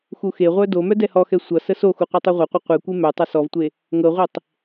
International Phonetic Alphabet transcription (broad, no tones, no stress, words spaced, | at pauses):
xuxeʁʷœ domœ dɛhɔxɛ sʷʌ səsoxu qʷœtˤœʁʷʌqʷə qʷɛkʷe mœtˤʌ sɔvtʷe | ŋɤʁʷetˤ